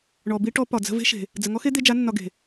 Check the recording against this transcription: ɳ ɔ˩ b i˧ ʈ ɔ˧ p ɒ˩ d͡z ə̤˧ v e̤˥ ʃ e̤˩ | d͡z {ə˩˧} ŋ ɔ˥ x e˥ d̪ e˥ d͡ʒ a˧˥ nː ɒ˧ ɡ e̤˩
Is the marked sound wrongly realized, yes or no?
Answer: yes